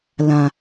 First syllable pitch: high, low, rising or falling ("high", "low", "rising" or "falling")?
low